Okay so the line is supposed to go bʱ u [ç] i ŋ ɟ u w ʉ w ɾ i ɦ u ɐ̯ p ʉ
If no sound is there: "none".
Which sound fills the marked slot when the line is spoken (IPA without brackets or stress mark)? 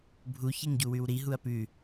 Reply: ç